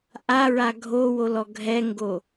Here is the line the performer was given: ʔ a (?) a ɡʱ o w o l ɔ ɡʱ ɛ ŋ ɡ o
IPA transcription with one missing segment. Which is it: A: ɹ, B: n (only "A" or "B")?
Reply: A